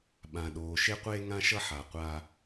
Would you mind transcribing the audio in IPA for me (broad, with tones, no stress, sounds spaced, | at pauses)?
ɓ ã˨ ɗ oː˨ ʃ e˦ qʷ eː˦ ŋ ã˦ ʃ ʌ˦ ħ a˨ qʷ a˦